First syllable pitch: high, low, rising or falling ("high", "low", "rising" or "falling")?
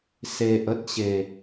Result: low